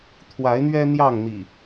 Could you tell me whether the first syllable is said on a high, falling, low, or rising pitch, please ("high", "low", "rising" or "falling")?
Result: rising